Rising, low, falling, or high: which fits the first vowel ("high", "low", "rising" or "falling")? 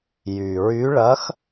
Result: low